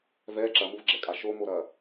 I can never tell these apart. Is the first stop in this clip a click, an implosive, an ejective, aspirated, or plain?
click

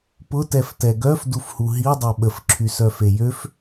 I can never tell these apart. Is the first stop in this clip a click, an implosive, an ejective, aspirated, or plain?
plain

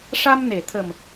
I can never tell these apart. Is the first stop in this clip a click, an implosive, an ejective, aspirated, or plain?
aspirated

